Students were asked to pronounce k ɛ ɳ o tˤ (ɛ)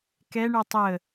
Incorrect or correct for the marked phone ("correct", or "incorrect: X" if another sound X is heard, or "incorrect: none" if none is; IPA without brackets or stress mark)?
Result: incorrect: ə